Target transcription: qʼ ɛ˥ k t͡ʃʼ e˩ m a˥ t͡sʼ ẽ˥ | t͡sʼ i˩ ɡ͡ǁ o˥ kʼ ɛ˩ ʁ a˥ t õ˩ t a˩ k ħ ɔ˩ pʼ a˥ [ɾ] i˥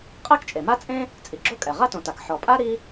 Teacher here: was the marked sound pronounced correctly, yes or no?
yes